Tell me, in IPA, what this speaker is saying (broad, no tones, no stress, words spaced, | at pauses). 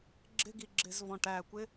ɡ͡ǁɪɡiɡ͡ǁɪzvɔ̃ ʈækʷɪ